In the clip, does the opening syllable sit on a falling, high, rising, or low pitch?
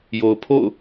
low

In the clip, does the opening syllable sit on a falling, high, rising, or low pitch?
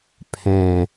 low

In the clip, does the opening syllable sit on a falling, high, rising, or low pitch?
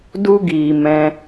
high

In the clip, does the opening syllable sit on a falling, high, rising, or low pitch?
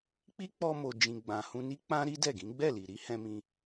high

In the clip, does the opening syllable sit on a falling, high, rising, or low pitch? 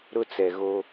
high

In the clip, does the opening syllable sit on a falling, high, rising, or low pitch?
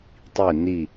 falling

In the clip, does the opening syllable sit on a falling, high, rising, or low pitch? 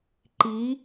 rising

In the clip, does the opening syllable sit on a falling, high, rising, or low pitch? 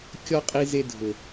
high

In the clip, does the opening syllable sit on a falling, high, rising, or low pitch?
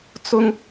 high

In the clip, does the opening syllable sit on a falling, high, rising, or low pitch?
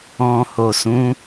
low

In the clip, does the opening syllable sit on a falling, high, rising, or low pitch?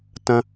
high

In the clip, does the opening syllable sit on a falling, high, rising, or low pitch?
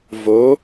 rising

